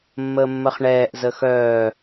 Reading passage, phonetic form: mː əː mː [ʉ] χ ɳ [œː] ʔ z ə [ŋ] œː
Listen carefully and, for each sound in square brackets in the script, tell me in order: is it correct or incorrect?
incorrect: ə, incorrect: ɛː, incorrect: x

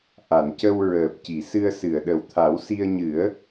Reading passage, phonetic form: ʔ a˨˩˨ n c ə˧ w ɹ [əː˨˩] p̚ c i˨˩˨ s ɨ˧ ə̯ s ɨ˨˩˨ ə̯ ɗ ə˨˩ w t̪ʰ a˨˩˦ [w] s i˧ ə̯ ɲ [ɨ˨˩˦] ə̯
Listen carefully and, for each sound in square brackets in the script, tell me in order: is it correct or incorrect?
correct, correct, correct

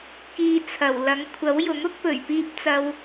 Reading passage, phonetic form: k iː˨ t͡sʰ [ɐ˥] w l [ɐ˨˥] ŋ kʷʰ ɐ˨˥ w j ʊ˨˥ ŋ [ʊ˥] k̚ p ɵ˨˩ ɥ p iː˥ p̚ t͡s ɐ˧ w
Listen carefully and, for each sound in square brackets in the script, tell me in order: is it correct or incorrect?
incorrect: ɐ˨˩, correct, correct

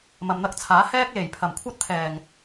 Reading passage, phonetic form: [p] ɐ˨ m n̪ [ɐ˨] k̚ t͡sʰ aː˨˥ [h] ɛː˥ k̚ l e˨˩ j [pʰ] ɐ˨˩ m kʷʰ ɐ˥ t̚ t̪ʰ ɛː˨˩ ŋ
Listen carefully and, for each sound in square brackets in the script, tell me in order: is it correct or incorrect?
incorrect: m, incorrect: ɐ˧, correct, correct

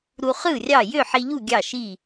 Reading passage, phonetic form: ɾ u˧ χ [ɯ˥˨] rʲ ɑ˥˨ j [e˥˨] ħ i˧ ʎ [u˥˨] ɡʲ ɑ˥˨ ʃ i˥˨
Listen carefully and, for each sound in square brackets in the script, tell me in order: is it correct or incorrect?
correct, incorrect: ø˥˨, correct

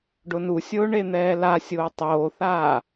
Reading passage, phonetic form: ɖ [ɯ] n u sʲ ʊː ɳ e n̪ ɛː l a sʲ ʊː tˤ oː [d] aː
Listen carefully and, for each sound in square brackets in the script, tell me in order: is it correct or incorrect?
incorrect: ʊ, incorrect: θ

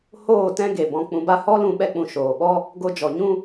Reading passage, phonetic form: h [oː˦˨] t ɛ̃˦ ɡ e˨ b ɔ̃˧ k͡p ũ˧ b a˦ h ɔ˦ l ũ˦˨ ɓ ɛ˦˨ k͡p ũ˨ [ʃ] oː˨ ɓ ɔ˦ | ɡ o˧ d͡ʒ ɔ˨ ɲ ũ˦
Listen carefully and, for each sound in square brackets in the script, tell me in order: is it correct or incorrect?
correct, correct

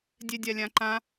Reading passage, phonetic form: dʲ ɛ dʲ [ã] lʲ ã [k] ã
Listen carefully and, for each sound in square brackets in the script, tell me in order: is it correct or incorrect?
incorrect: a, incorrect: ǃ

